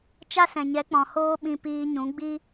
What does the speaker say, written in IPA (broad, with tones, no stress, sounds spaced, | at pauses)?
t͡ʃ a˦ s ɛ̃˨ ɲ ɛ˨˦ k͡p ɔ̃˨ h oː˦ ɓ ĩ˧ p iː˧ ɲ ũ˨˦ ɡ͡b i˦